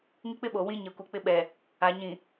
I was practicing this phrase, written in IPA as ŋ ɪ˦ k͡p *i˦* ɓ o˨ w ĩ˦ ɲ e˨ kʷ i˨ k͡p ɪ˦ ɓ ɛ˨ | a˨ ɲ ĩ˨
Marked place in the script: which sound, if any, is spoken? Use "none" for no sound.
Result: ɪ˦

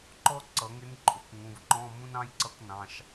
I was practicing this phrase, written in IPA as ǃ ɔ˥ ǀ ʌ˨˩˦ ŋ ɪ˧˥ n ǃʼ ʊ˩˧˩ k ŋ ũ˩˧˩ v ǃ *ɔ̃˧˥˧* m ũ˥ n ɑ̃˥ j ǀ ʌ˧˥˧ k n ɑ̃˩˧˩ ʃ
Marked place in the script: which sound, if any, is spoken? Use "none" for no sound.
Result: ɔ̃˧˥˧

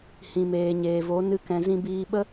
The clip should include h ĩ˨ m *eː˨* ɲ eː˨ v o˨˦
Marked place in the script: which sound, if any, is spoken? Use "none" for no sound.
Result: eː˨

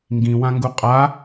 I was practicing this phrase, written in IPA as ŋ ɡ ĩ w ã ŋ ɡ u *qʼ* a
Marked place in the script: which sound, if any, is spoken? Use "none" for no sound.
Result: qʼ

